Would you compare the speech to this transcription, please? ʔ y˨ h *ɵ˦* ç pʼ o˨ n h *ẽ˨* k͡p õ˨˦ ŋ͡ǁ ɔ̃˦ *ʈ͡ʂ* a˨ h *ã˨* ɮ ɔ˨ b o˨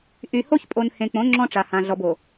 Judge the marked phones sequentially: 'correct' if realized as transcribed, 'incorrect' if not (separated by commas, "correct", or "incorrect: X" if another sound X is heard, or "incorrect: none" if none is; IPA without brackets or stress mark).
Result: incorrect: o˦, correct, correct, correct